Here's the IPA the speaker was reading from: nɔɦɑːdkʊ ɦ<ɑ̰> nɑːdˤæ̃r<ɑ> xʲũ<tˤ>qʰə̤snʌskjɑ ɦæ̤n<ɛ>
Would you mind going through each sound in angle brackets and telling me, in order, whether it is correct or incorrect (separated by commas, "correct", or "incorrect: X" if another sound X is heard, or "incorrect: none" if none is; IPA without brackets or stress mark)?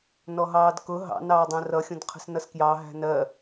correct, incorrect: ʌ, incorrect: d, incorrect: ɜ